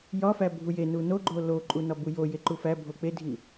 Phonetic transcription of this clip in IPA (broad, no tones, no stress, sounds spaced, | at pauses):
j ɒ f æ bʱ u j e n u n o ɡ͡ǃ o l o ǃʼ u n ɒ b u j o j e ǃ u f æ bʱ o k͡p e dʱ i